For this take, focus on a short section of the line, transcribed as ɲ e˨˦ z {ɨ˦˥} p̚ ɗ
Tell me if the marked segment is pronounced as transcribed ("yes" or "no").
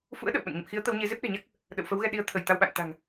no